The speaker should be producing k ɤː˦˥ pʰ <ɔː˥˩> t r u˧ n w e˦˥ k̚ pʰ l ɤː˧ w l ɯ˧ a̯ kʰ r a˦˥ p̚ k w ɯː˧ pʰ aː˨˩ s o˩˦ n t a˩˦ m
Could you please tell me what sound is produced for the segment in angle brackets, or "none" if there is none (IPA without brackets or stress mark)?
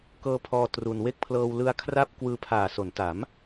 ɔː˧